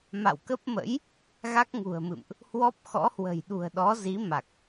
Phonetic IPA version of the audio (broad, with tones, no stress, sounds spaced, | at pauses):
m a̰˧˨ w k ə˦˥ p̚ m ə̰˧˥ j | ɣ a˦˥ k̚ ŋ ṳ˨˩ ə̯ m ɨ̰˧˨ m ʔ | h w ɔ˦˥ p̚ x ɔ̰˧˥ h w ə̤˨˩ j ɗ ṳ˨˩ ə̯ ɗ ɔ˨˦ z i˨˦ m a˨˩ k̚